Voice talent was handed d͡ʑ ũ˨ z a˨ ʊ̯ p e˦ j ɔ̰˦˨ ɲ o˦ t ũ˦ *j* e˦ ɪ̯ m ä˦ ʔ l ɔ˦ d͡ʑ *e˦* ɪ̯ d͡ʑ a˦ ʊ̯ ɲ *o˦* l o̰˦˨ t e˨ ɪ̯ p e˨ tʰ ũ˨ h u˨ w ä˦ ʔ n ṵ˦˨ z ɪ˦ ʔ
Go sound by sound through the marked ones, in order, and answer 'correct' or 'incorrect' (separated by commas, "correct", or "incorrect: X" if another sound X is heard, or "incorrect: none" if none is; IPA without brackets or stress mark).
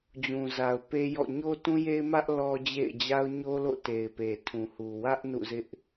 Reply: correct, incorrect: ḛ˦˨, correct